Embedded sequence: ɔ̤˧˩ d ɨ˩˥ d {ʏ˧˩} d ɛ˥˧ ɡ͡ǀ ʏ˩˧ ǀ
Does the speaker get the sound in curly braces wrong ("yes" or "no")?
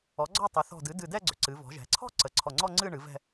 yes